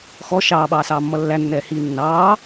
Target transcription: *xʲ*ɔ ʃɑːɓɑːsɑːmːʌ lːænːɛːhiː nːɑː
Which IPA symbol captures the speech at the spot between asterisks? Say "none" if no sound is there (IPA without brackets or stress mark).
x